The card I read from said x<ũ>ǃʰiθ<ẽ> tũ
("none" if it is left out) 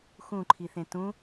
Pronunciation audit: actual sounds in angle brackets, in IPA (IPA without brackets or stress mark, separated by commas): ũ, ẽ